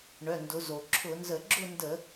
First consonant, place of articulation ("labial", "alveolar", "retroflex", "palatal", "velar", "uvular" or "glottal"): retroflex